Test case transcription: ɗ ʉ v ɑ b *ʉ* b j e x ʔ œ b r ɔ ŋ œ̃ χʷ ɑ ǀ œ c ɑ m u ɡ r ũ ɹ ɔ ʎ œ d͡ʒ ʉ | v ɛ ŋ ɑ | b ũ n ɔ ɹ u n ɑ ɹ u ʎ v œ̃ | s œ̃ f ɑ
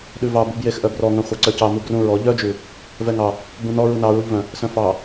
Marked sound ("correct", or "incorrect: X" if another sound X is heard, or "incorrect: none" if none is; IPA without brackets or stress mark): incorrect: u